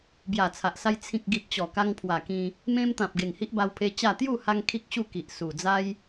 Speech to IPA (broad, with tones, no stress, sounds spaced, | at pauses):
b j a˨˩ t͡sʰ a˨ ʔ s a˧ j t͡sʰ ĩ˨ k̚ ɡ i˨ p̚ t͡ɕ ɔ˨˩ k a˧ ŋ pʰ w a˨˩ k ĩ˧ | m ẽ˧ m t̪ ã˨ p̚ ɡ e˨˩ ŋ h i˦ ʔ b a˧ w pʰ e˧ t͡ɕ a˥˧ t̪ j u˥˧ h a˧ ŋ kʰ i˦ k̚ ɕ u˥˧ k i˨ ʔ s u˨˩ d͡z a˦ j